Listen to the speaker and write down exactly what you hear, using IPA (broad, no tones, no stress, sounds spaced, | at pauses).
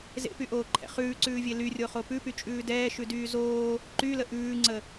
z ḛ p y ʔ oː ǃʰ ɛ̰ χ ʉː ǀ ʉː vʲ e l y rʲ o χ o p ʉ p y t͡ʃʼ ʉː d ɛː ʃ ʉ d yː z oː | ǃ y l ə ʔ ʉː ŋ͡ǀ ə